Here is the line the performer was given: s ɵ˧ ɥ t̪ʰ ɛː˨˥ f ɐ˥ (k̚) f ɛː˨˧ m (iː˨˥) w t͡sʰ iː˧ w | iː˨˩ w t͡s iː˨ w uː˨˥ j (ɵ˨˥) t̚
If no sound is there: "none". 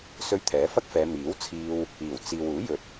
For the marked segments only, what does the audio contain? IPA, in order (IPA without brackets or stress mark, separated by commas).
k̚, iː˨˥, ɵ˨